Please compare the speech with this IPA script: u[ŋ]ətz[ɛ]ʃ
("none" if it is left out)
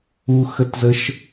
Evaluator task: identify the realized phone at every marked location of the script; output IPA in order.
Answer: x, ə

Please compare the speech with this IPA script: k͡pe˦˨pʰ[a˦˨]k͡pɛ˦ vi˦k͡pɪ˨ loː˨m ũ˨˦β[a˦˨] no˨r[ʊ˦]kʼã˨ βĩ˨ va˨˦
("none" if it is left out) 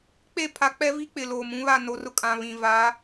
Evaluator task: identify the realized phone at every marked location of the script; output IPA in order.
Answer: a˨, a˦˨, ʊ˦

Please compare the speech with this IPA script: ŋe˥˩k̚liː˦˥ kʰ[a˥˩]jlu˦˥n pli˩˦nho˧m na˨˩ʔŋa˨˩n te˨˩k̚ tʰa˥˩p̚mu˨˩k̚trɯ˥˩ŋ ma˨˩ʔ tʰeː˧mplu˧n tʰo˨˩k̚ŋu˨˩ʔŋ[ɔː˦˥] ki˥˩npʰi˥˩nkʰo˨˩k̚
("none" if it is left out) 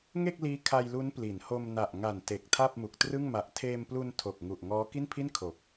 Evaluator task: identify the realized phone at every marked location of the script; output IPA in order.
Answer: a˧, ɔː˦˥

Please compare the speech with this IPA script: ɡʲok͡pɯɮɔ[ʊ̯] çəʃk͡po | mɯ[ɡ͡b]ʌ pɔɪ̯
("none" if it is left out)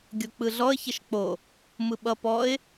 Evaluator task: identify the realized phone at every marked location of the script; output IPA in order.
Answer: ə̯, ɓ

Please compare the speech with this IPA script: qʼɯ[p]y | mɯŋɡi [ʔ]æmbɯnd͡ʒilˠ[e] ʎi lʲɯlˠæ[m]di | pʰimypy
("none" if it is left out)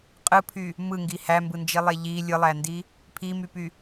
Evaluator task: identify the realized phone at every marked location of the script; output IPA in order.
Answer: pʰ, h, e, n

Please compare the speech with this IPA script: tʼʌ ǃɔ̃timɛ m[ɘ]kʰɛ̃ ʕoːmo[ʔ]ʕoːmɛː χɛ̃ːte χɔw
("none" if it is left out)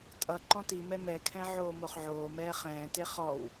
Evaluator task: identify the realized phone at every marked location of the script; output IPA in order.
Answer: ɛ, χ

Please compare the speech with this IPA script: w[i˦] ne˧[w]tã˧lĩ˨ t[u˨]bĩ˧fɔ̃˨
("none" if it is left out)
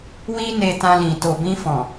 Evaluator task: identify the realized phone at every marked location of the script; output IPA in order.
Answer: i˦, none, o˨

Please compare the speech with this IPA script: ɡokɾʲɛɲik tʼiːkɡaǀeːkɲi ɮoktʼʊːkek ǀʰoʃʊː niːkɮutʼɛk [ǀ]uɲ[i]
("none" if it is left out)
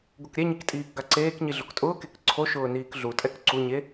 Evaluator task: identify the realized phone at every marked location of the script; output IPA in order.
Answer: ǀ, e

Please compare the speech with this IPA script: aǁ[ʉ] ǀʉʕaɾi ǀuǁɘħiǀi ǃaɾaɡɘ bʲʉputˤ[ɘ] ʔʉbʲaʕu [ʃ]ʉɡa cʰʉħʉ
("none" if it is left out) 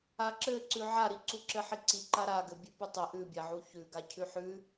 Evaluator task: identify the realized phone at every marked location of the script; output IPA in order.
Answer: ɘ, ɘ, ç

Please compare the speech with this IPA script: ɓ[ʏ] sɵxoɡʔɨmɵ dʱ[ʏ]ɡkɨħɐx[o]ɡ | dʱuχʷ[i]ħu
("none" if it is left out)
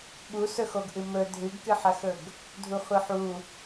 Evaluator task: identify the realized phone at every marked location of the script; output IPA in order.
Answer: u, ɨ, ɵ, ɨ

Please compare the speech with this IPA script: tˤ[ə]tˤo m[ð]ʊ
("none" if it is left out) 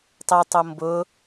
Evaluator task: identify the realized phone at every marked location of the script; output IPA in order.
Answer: ɛ, b

